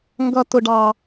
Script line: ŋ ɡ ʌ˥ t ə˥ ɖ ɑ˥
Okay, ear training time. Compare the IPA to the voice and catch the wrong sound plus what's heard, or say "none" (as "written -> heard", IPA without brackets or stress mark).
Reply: ə˥ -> ʊ˥